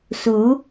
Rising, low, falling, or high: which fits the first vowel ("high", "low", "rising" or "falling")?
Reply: rising